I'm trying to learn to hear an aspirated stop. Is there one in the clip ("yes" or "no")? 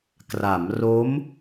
no